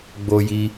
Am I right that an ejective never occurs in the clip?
yes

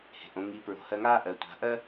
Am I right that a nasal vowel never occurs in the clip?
no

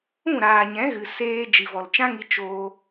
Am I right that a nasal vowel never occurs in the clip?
no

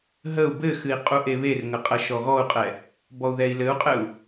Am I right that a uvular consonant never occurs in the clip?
no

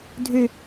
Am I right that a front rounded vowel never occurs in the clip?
no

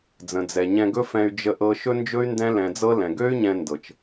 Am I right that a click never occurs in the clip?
yes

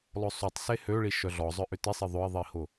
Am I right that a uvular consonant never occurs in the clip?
yes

